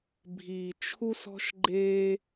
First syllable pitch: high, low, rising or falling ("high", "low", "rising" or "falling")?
low